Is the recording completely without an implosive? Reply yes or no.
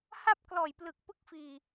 yes